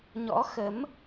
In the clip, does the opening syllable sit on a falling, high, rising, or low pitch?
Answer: rising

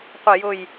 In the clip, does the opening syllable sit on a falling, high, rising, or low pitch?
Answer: falling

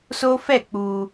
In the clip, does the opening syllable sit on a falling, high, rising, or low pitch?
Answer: high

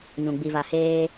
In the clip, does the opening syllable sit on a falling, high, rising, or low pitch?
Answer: low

